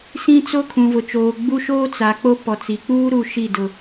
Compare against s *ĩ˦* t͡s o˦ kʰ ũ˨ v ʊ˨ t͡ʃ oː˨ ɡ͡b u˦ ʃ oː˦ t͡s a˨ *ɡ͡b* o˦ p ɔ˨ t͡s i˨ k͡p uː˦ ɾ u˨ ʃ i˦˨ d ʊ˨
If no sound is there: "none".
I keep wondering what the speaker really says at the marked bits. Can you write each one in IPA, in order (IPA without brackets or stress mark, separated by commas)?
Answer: ĩ˦, k͡p